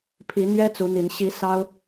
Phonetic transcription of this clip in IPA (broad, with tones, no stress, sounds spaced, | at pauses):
pʰ i˨˦ n̪ ɥ ɛ˦ t͡s u˨˦ n̪ i˨˦ n ɕ i˨˦ s ɑ˦ ʊ̯